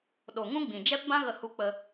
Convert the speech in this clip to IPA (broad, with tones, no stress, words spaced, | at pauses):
ɗo˨ŋũ˦ɡ͡bĩ˨ d͡ʒɛ˦pbã˦ɣə˧ hu˧k͡pə˧